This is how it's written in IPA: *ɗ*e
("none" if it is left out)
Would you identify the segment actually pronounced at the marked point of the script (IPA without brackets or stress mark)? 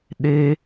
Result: ɗ